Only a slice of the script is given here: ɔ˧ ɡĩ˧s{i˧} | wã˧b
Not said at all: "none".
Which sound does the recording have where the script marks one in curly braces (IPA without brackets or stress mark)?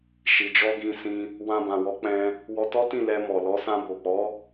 ĩ˧